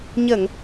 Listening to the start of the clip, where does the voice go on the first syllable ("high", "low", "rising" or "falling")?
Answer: low